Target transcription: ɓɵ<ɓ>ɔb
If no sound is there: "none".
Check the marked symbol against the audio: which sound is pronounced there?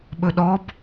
ɗ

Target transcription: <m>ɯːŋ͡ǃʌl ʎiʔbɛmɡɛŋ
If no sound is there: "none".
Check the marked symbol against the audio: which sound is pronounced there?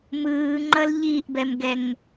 m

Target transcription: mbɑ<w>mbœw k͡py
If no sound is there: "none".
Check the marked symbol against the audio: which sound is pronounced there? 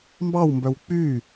w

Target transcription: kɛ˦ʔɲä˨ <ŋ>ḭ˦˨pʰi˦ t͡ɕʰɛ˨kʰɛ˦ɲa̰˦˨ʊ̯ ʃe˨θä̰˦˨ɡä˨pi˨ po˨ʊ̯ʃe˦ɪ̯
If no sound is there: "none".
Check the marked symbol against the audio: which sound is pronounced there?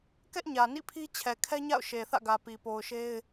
n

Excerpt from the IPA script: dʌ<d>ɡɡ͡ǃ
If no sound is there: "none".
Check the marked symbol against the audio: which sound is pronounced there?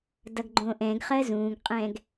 none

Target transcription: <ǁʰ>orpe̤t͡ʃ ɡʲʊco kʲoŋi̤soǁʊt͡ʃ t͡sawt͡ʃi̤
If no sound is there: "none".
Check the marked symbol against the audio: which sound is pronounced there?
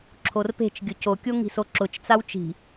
ǁʰ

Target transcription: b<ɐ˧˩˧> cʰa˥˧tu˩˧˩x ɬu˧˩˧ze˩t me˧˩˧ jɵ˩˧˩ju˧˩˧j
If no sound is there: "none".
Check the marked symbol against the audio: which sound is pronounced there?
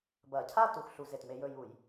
ɐ˧˩˧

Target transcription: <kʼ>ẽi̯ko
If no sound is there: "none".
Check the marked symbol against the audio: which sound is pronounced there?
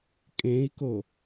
kʼ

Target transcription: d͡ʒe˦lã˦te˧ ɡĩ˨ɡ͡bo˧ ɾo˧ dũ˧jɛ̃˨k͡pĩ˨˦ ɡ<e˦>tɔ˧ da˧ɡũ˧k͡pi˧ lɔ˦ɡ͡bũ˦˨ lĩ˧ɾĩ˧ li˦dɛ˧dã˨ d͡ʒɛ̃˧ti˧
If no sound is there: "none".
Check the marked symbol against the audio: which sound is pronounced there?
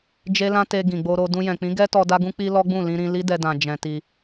ɛ˦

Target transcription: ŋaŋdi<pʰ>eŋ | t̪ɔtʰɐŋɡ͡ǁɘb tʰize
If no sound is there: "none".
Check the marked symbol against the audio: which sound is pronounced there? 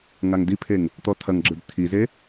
pʰ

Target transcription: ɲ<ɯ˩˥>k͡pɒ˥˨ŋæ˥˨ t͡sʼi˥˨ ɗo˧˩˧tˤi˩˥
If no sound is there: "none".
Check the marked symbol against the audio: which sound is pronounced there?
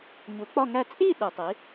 u˩˥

